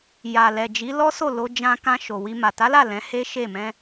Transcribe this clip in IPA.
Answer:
j a˨ l ɛ˨ d͡ʒ i˨˦ l ɔ˦ s o˦˨ l o˧ d͡ʒ ã˧ k ã˧ ʃ o˨ w i˧ m a˨ t a˨˦ l a˦˨ l ɛ̃˨˦ h e˦ ʃ e˦˨ m ɛ̃˧

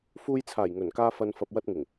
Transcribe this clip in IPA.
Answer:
f uː˧ j t͡sʰ aː˨˩ j ŋ ɵ˨˩ n k aː˧ f ɐ˨ n f ɐ˨ p̚ w ɐ˧ t̚ ŋ ɪ˨˩ ŋ

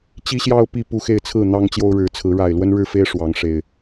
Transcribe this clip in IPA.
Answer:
t͡ɕ i˦ ɕ j ɑ˦ ʊ̯ p i˥˨ p u˥˨ x e˥˨ ɪ̯ t͡sʰ ɹ̩˥˨ n̪ ɑ˦ ŋ t͡ɕ j o˦ ʊ̯ ɻ ɻ̩˨˦ t͡sʰ ɹ̩˨˦ ɻ a˨˩ ɪ̯ l w ə˦ n ɻ ɻ̩˥˨ f e˦ ɪ̯ ʂ w ɑ˨˦ ŋ ʂ e˨˩ ɪ̯

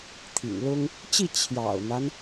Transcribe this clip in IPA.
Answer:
t̪ʰ ḭ˨˩ ŋ l ʊ˥ ŋ | t͡ɕ i˥˩ t͡ɕʰ j ɑ̰˨˩ ʊ̯ n̪ a˦ n

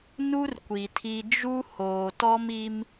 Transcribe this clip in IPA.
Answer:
n u˦ r kʷ i˨ tʰ i˦ d͡ʒ u˦ h oː˨ t ɔ˦ m i˦ m

